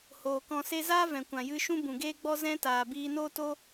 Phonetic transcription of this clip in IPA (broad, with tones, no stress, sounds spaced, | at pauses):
h oː˨ k ɔ̃˨ s e˧ z aː˦ v ɛ̃˨ kʷ ã˨ j ɨ˧ ʃ ũ˦ b ũ˨ ɡ eː˦ ɡ͡b ɔ˦ z ɛ̃˦ t aː˨ b iː˧ n oː˦ t o˦